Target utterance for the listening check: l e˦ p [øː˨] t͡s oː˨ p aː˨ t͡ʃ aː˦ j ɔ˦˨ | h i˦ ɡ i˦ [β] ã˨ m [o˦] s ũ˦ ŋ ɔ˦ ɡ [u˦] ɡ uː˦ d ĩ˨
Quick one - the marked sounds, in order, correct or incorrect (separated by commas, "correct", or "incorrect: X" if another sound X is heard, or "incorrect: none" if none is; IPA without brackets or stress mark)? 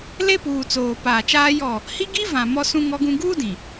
incorrect: uː˨, incorrect: v, incorrect: ɔ˦, incorrect: ũ˦